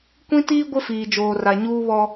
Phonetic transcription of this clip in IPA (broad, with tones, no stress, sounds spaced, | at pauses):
kʷ ĩ˦ t iː˦ ɡʷ ɪ˦ f iː˨ d͡ʒ oː˨ r a˨ ɲ uː˦ β ɔ˦